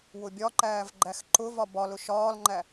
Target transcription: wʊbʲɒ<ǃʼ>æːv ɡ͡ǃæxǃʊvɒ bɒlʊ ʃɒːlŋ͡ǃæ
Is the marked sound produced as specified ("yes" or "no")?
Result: no